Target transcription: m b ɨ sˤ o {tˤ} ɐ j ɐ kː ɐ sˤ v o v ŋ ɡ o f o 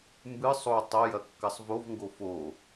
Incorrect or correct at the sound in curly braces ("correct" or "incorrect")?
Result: correct